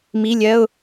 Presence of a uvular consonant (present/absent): absent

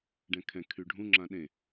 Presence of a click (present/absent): present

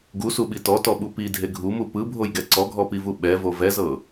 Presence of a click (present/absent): present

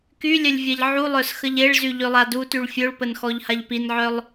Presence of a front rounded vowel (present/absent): present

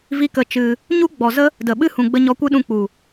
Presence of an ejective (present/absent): absent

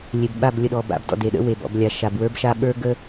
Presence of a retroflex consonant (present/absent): absent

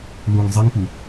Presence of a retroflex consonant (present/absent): absent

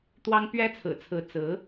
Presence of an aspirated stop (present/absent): present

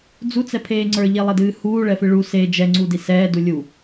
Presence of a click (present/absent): present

